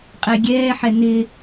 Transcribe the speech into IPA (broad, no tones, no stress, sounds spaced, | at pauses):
qʼ ɛ ɡʲ ɛː ħ ɛ n ɪ